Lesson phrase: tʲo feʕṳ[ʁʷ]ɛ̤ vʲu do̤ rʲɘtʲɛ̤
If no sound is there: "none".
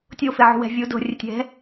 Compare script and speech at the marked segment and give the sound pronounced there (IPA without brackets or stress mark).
w